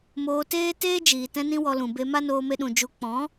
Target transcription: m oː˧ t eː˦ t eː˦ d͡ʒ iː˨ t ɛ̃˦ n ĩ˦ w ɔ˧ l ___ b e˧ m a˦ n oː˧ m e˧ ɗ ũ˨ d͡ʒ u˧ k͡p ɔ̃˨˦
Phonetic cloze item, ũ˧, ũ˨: ũ˨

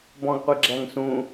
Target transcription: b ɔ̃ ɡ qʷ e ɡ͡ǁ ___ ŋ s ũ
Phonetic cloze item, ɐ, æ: æ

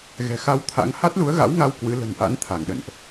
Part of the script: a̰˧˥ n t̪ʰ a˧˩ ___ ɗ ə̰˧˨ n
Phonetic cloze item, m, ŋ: ŋ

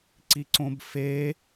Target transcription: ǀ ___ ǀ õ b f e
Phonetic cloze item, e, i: i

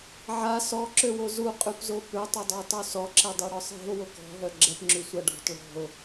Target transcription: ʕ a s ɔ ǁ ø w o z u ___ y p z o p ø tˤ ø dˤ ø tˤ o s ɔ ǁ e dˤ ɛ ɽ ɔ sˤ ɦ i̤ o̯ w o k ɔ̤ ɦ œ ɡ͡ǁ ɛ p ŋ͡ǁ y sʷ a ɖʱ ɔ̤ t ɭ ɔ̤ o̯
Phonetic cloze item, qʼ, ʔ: qʼ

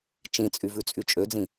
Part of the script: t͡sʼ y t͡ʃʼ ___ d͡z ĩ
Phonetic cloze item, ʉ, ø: ø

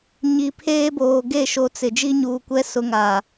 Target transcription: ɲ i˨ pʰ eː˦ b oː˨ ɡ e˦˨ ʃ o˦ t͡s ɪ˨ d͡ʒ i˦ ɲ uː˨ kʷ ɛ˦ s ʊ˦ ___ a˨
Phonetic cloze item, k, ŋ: ŋ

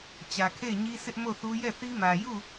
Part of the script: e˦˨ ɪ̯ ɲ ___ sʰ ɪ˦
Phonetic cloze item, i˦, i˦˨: i˦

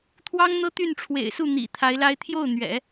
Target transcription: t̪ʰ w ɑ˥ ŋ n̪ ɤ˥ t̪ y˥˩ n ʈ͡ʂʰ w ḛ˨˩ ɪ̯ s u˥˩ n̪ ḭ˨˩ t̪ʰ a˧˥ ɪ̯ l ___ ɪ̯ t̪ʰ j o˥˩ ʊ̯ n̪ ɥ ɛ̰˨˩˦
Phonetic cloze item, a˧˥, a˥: a˥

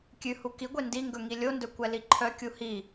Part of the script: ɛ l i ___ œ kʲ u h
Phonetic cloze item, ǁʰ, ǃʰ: ǃʰ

